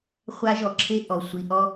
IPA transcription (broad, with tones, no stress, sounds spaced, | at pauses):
χʷ a˦ ʒ ɔ˨ ǁʰ e˦ ʔ ɔ˨ sʷ i˨ ʔ ɔ˦